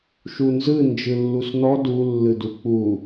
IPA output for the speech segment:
ʃ u n z ɯ n d͡ʒ ɯ lː u s n ɔ d u lː ɯ d u k͡p u

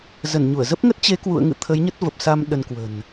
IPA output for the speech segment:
z ə˧˩ n ɲ u˧˩ ə̯ z ə˦˥ p̚ ŋ ə˦˥ t̚ t͡ɕ e˨˦ k w ṵ˧˨ ə̯ ŋ ɨ̰˧˨ t̪ʰ ə˨˦ j ɲ ə˦˥ t̚ v ə˨˩ p̚ s a˧ m ɗ ə˧ n k w ə̤˨˩ n

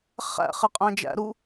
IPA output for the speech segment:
χ æ̰ χ e qʼ æ̃ d͡ʒ æ̰ ɾ u

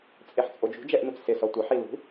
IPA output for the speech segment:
t͡sʼ e ħ t͡sʼ o d͡ʒ ṳ d͡ʒ ɛ ʔ n u t͡s s ɪ s ɔ tʷ ɪ ħ i l ṳ

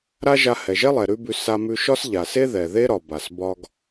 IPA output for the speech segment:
ɾ a˥ ʒ a˧ h ɛ˩ ʒ ɛ˥ lˠ ɛ˩ ɾ ʉ˥ b ʉ˧ s a˧ m ʉ˧ ʃ ɒ˥ s ʎ a˩ s e˥ ð ɛ˩ ð e˥ ɾ ɒ˩ b a˩ s b ɒ˧ ɡ

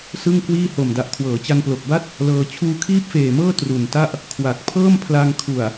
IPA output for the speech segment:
s ɯ˥˩ ŋ k w iː˥˩ h o˨˩ m d a˨˩ ʔ kʰ w ɤː˩˦ t͡ɕ a˧ n p l o˨˩ k̚ b a˥˩ t̚ | l ɤː˧ t͡ɕʰ uː˧ kʰ iː˥˩ p̚ f eː˨˩ m ɤː˥˩ t r u˨˩ n t a˥˩ ʔ | kʰ w a˨˩ k̚ pʰ ɤː˥˩ m pʰ l a˧ ŋ kʰ u˨˩ a̯

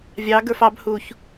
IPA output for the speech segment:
vʲ ɑ ɡ ə˞ f ɑ b h u ç

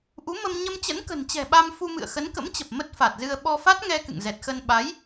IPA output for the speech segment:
ʔ u˨˦ m ə˧ m ɲ ə˧ m t͡ɕ ə̰˧˥ n k ə̤˨˩ n t͡ɕ ɛ̤˨˩ ɓ a˧ m f u˧ m ɨ̰˧˨ ə̯ x ə˨˦ n k ə̰˧˥ m t͡ɕ ə˨˩ p̚ m ə˦˥ t̚ f a˨˩ t̚ z ɨ˧ ə̯ ɓ ɔ˧ f a˦˥ t̚ ŋ ɛ˧ k ɨ̰˧˨ ŋ z ɛ˨˩ t̚ x ə˧ n ɓ a˨˦ j

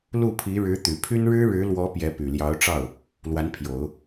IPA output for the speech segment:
l u˥˩ pʰ i˧˥ ɻ ɻ̩˧˥ t̪ y˨˩ pʰ y˥ n ɻ ɻ̩˥ ɻ ɻ̩˧˥ l w ɔ˧˥ p j ɛ˧˥ p y˨˩ l j ɑ˧˥ ʊ̯ ʈ͡ʂ ɑ˥˩ ʊ̯ | l w a˧˥ n pʰ j o˨˩˦ ʊ̯

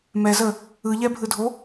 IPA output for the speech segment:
m ɛ z ə | ɯ ʎ ɛ bʱ ɯ dʱ o

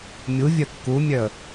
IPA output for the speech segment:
mʲ u vʲ œ kː u mʲ œ ə̯

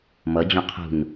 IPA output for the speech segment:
m ʌ d͡ʑ õ qʰ ṳ n

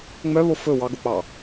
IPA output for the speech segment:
ŋ͡m œ β o f ɵ w ɑ ɡ o k͡p ɑ

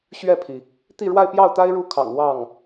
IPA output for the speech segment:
ɕ ɥ ɛ˥˩ pʰ i˩ | t̪ i˥˧ ɻ w a˥˧ ɪ̯ p j ɑ˥˩ ʊ̯ t̪ a˥ ɪ̯ ɻ u˥˩ kʰ ɑ̰˨˩ ŋ w ɑ˥˩ ŋ

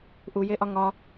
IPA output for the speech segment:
ʔ u j e ʔ ɒ ŋ ɒ

